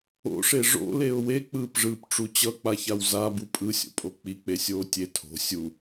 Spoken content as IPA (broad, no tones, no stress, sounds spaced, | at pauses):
o̰ ʂ e ʐ o̰ l e ʊ̯ w e k͡p ɯː p ʐ ɯː p ʈ͡ʂ u t͡ɕ ʌ k͡p a ç a w z a b u pʼ ɯ sʲ o̰ pʼ o k͡p i k͡p e sʲ oː tʲ e tʰ o̤ sʲ u